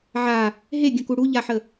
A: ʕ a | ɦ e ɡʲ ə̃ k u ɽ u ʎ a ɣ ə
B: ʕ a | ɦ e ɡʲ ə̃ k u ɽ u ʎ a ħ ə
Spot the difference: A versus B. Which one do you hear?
B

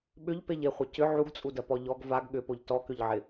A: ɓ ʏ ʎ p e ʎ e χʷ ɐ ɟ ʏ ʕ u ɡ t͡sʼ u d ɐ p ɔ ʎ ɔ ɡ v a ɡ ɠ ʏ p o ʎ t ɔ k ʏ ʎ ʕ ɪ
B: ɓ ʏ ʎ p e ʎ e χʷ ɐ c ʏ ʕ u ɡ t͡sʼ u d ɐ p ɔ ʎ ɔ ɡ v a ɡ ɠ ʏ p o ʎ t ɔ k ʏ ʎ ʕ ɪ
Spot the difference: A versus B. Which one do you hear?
B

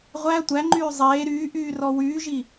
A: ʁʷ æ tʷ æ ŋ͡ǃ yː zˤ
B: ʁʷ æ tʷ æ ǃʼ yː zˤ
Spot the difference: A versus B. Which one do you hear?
A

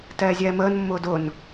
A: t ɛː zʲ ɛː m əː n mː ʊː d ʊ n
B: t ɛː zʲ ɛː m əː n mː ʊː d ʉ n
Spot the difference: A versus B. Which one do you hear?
A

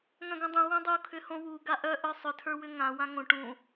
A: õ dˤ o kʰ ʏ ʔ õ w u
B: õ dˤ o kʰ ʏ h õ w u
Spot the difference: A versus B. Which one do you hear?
B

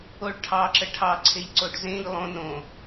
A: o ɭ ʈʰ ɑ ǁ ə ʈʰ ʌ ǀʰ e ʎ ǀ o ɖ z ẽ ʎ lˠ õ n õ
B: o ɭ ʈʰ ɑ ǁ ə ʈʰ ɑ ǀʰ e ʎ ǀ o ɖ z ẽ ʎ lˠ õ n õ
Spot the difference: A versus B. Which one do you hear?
B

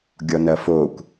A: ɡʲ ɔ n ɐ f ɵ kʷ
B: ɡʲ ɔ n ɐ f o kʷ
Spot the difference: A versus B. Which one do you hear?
B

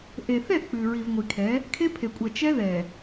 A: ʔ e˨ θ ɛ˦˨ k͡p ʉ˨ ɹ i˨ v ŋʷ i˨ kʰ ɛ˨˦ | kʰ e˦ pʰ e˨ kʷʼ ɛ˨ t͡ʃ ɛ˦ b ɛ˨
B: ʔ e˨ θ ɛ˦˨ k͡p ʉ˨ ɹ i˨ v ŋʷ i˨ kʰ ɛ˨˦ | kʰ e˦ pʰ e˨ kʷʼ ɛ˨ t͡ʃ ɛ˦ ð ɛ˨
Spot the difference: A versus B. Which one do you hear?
B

